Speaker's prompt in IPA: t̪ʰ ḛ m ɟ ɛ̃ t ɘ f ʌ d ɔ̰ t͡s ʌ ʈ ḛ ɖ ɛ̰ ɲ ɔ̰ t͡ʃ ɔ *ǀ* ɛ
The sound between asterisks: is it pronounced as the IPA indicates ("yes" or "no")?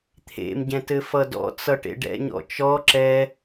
no